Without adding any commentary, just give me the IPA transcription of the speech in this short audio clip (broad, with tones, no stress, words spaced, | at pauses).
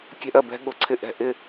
kʲɛ̤˧ʔɜ˩bɛ̤˧ ɠʊ˩ǀʰɪ˧˩ʔɛ̤˩ʔɪ˧˩